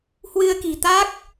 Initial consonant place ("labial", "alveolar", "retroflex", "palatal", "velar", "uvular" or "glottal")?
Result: glottal